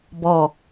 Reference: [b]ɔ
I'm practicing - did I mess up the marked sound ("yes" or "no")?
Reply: no